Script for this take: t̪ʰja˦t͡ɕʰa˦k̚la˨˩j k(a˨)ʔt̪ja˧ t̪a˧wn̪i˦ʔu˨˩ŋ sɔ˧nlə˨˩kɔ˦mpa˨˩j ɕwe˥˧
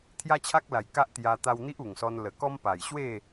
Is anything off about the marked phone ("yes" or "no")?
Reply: yes